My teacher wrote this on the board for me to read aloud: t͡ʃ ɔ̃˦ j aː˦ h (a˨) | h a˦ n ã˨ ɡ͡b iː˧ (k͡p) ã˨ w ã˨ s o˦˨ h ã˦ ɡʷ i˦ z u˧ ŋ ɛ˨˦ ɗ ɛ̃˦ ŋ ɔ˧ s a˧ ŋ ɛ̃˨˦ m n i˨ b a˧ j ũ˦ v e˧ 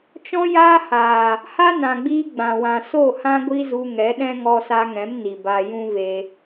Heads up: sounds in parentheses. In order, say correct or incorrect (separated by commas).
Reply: incorrect, incorrect